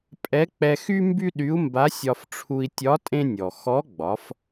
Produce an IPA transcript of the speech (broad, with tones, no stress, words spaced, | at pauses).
pʼɛ˧˥k͡pɛ˧ xy˥ mby˥ɗy˧˥u̯mba˧˥ sʲɒ˧fʈ͡ʂʰu˧i̯tʲɒ˧˥ tʼẽ˥nʲɔ˩ xɔ˧˥ɡ͡bɒ˩˧f